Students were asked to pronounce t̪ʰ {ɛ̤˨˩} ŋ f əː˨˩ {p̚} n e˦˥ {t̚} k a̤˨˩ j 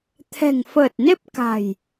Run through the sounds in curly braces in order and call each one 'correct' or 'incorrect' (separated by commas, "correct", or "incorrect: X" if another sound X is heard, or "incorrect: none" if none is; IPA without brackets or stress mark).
correct, incorrect: t̚, incorrect: p̚